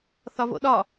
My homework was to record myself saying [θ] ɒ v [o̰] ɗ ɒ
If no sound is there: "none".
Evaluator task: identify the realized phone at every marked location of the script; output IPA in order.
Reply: θ, o̰

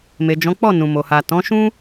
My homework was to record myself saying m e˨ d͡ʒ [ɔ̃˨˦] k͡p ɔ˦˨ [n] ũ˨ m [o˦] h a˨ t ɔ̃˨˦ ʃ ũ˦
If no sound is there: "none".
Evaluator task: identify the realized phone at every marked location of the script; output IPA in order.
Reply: ɔ̃˨˦, n, o˨

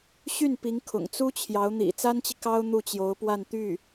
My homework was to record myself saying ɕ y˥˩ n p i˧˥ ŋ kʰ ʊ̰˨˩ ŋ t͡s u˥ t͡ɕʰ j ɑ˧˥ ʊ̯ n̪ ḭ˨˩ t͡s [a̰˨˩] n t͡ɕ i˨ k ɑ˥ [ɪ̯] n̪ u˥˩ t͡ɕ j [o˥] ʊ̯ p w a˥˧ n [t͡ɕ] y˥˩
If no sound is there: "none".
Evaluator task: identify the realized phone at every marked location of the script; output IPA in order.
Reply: a˥, ʊ̯, o˧˥, t̪

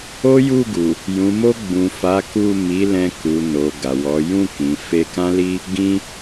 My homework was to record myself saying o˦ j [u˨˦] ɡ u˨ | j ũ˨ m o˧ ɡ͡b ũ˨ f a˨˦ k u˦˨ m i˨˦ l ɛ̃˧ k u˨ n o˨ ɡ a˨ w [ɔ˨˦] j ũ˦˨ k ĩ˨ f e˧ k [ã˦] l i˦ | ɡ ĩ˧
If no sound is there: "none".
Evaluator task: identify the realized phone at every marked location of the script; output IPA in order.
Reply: u˦˨, ɔ˨˦, ã˦

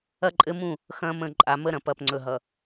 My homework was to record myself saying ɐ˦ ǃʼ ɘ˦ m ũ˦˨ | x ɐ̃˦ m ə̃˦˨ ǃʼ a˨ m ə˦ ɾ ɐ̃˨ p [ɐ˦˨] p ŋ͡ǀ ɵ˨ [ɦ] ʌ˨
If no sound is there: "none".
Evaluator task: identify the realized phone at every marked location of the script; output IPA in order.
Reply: ɐ˦˨, ɦ

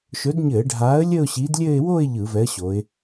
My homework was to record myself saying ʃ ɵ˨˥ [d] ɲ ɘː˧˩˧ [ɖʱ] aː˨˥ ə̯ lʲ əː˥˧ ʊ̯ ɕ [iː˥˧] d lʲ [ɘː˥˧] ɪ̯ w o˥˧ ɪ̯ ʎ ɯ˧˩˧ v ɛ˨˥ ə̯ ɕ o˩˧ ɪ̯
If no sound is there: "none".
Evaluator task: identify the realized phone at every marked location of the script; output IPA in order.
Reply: d, ɖʱ, iː˨˥, ɘː˥˧

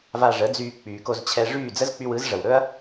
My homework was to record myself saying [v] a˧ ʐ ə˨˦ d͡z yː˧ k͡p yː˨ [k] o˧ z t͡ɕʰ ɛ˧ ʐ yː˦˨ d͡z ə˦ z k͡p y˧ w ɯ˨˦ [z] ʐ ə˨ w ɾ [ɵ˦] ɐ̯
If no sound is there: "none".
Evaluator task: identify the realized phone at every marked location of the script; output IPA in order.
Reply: v, k, z, ɵ˦

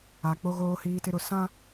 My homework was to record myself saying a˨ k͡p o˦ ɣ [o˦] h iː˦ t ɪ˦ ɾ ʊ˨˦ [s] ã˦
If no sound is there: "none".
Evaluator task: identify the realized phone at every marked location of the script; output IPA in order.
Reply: oː˦, s

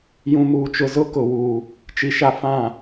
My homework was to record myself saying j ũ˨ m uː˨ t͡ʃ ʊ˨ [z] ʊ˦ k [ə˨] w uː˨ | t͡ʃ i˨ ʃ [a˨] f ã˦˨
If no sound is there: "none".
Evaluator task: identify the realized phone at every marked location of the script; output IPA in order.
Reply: z, ʊ˨, a˦

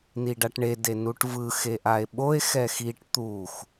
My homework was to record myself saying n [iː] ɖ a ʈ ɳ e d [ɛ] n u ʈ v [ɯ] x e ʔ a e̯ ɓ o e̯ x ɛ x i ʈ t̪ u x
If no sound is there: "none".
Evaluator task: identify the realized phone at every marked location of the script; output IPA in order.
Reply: i, e, ɯ

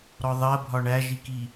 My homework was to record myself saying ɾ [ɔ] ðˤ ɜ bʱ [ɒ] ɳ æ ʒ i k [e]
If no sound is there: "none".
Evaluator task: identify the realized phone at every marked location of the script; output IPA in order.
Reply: ɔ, ɒ, i

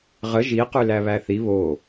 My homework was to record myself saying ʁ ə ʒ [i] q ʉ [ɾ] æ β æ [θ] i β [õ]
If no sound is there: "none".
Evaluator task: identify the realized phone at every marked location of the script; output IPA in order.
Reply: i, l, θ, o

